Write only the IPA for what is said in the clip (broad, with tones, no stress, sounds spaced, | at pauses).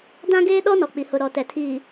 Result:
d ã˦ ɡ eː˦ ɗ ɔ˦ n ɔ˨ k͡p i˨ h ʊ˨ ɾ ɔ˨ t ɛ˨ tʰ iː˨